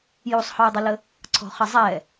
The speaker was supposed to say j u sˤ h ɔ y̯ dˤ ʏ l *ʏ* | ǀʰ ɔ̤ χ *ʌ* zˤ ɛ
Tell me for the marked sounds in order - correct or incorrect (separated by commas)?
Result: incorrect, incorrect